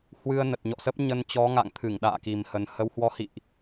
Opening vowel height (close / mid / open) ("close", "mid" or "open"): close